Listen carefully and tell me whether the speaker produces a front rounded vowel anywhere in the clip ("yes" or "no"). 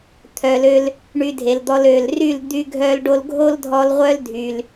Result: yes